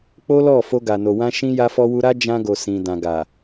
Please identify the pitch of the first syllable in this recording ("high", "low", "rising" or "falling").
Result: high